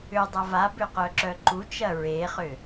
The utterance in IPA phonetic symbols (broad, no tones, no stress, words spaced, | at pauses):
ʏ dˤɐvabʏ qœǁœǃut͡ʃɐ ɹeχʏ